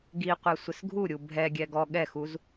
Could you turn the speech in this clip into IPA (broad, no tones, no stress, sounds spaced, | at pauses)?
ɡ i qʷ ɛ sʷ ɪ s ɡʱ u ɾʲ u bʱ ɛ ɡʲ ɛ ɡ ɔ ɠ ɛ x u z